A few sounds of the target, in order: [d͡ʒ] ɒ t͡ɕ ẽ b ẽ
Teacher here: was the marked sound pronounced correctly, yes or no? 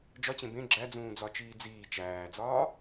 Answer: yes